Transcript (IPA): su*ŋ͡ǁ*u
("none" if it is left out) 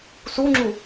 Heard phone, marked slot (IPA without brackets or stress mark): ŋ͡ǁ